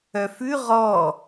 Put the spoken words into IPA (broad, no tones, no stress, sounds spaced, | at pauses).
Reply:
œ f ʉ ʁ ɔ